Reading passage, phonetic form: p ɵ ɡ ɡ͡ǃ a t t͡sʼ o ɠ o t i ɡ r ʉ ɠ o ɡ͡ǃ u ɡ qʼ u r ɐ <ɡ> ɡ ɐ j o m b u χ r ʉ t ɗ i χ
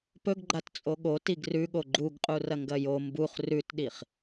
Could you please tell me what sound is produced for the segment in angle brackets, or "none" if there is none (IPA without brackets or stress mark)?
ŋ